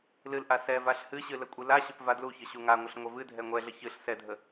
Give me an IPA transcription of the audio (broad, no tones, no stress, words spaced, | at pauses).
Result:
lɨlʔa sɛvaɬ hɨɕɨ ləkʷʼɨlaɕəp vadluçə ɕuŋaŋʷəɬ ŋʷɛvɨdʱɛ ŋʷɛɮə çɨɬ sɛdʱə